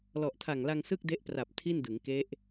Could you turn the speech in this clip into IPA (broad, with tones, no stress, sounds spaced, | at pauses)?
l ɔ˨˩ ʔ tʰ a˨˩ ŋ l a˧ ŋ s ɯ˥˩ k̚ d e˦˥ ʔ p r a˨˩ p̚ tʰ i˥˩ n d ɯ˩˦ ŋ k e˦˥ ʔ